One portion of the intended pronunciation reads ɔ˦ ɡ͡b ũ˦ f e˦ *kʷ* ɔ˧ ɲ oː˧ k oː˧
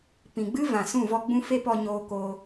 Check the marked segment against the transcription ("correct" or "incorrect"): incorrect